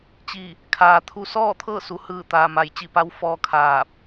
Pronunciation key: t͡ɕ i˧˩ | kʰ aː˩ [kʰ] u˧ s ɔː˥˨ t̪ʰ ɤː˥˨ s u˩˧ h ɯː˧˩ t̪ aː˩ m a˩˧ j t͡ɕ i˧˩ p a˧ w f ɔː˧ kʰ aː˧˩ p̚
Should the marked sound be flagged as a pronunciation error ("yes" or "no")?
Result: yes